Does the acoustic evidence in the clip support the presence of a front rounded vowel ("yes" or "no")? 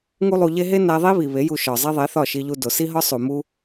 no